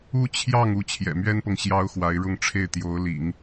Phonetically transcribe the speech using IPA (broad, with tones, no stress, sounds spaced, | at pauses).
u˥ t͡ɕʰ j ɑ˥˧ ŋ u˥˩ t͡ɕʰ j ɛ̰˨˩ m ɥ ɛ˥ n p ɤ˨ ŋ ɕ j ɑ˥ ʊ̯ x w a˧˥ ɪ̯ ɻ ʊ˥˧ ŋ ʈ͡ʂʰ e˥˩ ɪ̯ t̪ j o˧˥ ʊ̯ l ḭ˨˩˦ ŋ